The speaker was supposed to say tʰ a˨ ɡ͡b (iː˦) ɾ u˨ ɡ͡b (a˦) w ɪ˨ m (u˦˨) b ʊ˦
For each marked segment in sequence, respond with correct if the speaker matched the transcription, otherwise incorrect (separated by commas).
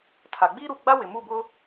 correct, correct, correct